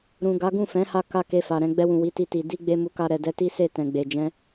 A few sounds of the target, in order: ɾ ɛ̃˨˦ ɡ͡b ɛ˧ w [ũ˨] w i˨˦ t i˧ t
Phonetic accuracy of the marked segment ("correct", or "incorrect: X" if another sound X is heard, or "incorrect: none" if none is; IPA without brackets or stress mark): correct